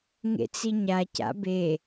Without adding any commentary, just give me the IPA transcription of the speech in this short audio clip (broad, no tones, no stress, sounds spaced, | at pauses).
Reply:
ŋ ḛ t͡s i ɲ a c a̰ b e